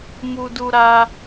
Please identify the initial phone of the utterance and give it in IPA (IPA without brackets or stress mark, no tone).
m